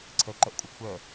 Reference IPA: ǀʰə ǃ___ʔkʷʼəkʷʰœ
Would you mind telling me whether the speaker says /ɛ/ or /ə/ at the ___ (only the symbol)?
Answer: ə